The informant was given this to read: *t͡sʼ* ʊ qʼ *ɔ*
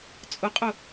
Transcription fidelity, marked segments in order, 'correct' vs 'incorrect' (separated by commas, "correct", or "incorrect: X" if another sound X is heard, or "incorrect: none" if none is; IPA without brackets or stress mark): correct, incorrect: ʊ